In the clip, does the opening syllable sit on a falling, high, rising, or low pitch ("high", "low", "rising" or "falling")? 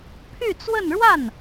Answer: falling